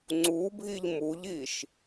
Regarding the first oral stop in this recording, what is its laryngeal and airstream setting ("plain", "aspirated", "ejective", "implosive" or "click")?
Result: click